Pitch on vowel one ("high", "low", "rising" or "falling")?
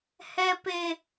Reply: high